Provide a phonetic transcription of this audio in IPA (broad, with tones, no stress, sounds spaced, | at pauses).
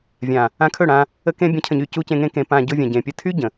vʲ ã˨ | ã˧ kʰ ɵ˦˨ ɽ ã˧ | ə˧ k ẽ˧ bʲ ə̃˨˦ cʰ ə̃˨ ɲ y˨ c u˧ c ẽ˧ ŋ ẽ˧ k ẽ˨ p ã˨ ɟ ʊ˧ vʲ ã˨ ɟ ẽ˨ pʲ ə˦˨ tʰ y˦ ɟ ə̃˨